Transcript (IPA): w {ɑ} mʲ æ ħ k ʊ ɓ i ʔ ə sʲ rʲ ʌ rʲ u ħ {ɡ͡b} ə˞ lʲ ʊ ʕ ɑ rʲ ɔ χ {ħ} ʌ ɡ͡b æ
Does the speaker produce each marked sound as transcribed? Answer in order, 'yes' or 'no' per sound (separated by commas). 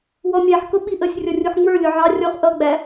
no, no, no